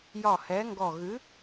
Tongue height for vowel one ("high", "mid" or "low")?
low